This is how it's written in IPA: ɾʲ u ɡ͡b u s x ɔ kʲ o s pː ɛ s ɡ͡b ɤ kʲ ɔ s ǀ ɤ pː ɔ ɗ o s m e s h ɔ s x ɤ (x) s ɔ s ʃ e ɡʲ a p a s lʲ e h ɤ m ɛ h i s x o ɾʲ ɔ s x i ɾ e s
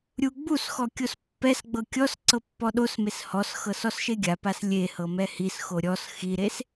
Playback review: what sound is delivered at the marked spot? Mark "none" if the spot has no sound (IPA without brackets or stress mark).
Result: none